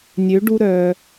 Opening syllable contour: rising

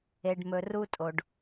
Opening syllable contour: low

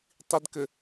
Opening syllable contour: low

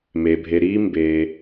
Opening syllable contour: low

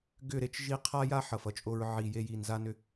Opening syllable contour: falling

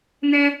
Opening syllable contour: high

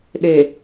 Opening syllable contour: low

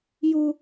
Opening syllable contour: high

